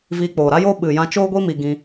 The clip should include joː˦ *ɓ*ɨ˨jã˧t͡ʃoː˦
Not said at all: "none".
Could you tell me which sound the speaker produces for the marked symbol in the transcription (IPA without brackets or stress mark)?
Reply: ɓ